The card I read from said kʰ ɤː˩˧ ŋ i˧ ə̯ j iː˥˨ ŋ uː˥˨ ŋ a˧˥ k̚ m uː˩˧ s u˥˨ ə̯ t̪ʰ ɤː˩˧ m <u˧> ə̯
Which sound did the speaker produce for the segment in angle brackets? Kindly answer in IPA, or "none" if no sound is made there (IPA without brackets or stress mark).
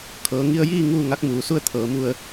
u˧